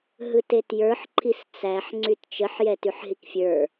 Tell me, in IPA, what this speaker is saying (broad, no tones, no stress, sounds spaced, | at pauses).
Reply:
ɦ ɯ t e t j ə˞ ħ ǃʰ i s t͡s æ ħ ŋ͡ǀ y t t͡ʃ ə ħ j ɛ t y ħ ɦ i k fʲ ə˞